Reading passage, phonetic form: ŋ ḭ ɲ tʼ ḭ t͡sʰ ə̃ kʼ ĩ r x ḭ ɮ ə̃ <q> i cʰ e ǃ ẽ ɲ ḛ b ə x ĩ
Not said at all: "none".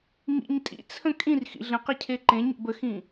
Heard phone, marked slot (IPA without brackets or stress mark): q